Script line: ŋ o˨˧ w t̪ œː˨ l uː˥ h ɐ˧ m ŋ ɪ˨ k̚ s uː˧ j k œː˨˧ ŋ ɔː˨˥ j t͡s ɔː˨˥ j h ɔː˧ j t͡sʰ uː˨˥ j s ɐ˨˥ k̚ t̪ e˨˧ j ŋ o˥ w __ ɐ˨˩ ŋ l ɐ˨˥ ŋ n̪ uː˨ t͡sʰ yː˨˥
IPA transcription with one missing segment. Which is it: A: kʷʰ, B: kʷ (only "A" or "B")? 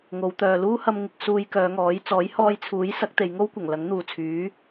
B